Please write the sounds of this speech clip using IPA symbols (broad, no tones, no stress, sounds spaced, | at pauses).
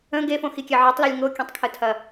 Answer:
ə̃ ɡ e f õ x i kʲ ɛ ʕ e tˤ l ə lʲ ŋ o kʲ ə̃ tˤ kʰ ə tʰ ɐ